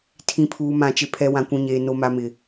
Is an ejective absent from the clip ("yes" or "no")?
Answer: yes